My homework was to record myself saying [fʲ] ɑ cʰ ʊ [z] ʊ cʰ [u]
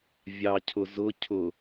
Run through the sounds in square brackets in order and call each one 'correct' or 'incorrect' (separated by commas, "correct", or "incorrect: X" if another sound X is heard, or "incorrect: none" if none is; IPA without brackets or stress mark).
incorrect: vʲ, correct, incorrect: ʊ